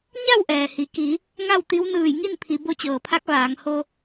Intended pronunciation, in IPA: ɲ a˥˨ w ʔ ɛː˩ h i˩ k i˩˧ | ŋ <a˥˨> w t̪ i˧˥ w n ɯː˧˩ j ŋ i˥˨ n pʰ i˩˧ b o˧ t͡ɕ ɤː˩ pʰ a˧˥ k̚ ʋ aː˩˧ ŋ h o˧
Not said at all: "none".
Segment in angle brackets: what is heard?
a˥˨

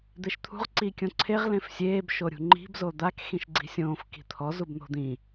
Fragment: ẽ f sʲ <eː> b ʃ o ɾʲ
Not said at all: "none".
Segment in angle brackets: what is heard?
eː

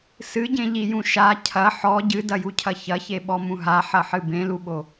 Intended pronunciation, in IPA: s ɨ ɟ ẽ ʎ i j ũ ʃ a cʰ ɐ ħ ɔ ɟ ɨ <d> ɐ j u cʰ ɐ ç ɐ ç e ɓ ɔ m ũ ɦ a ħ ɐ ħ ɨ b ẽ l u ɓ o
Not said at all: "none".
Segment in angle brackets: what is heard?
d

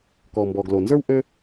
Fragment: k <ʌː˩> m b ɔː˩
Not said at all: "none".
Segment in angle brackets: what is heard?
ɔː˩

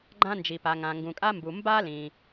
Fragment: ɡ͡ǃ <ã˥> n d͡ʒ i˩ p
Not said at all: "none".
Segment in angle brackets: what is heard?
ã˥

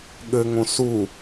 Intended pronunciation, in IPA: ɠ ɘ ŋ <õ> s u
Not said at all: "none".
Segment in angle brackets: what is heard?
õ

